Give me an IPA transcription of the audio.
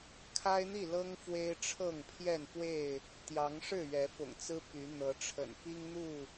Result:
kʰ a˦ ɪ̯ n̪ i˥˨ l ɤ˦ ŋ f w e˦ ɪ̯ ʈ͡ʂʰ ɤ˥˨ ŋ pʰ j ɛ˥˨ n p w e˥˨ ɪ̯ | t̪ j ɑ˨˦ ŋ ʂ ɻ̩˥˨ ɥ ɛ˨˦ f ʊ̰˨˩ ŋ t͡s ɹ̩˦ p y˨˦ n̪ ɤ˨˦ ʈ͡ʂʰ ə̰˨˩ n p i˦ ŋ n̪ u˥˨

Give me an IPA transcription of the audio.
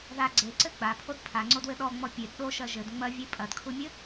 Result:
ð a ɡ͡ǀ e ǀ ɘ ɡ͡b a pʰ o d pʰ a ŋ͡ǀ o d w ɘ ɗ ɔ ŋ͡m ɔ pʲ e d ɗ o ʃ ɐ ʒ ɘ d ŋ͡m ɐ vʲ e pʼ ɐ d kʰ u mʲ ɘ

